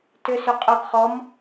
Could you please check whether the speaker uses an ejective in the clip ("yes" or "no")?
yes